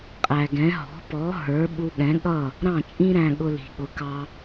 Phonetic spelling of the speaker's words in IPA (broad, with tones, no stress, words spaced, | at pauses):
qʼæ˩ɡɛ̃˩˥ ɦɔ̤˩˥pɔ˩˥ ɦə˞˩˥ ɓu˧ɠɛ̃˩˥ ɠʌ˥˩ | ɾɑ̃˥˩t͡ʃʼĩ˥ɾæ̃˧ ɠʊ˧li̤˩ɠʊ˩˥kɑ˧